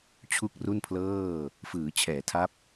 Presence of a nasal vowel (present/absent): absent